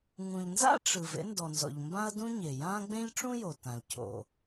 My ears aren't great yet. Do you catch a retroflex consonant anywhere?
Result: yes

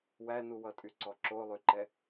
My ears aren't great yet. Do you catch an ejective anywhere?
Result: yes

